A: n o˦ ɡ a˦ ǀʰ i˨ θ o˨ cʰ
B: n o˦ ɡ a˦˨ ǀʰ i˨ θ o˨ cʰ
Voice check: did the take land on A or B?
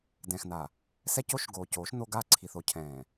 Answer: B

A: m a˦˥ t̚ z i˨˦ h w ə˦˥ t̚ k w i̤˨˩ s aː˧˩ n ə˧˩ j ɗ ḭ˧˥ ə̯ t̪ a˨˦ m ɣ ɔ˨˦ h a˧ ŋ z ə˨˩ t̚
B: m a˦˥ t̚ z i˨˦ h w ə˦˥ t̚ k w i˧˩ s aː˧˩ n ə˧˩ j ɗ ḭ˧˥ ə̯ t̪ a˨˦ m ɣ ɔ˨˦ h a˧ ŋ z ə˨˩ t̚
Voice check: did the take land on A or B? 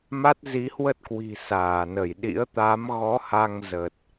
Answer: A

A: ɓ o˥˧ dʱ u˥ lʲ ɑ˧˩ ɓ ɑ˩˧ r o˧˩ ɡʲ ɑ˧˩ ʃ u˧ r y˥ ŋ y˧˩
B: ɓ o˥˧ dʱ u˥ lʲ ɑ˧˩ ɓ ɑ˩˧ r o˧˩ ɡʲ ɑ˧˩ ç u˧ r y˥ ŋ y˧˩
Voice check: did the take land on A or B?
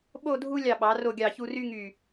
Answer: B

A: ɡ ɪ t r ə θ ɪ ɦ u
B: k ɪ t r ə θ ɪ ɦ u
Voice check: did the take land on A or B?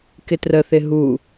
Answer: B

